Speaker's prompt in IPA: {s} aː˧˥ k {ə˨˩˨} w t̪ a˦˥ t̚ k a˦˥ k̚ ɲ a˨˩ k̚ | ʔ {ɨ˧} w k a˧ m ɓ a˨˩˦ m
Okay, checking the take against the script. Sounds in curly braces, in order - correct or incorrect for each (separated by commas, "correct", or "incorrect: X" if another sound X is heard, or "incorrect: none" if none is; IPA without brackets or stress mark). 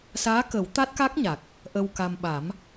correct, incorrect: ə˨˩˦, incorrect: ə˧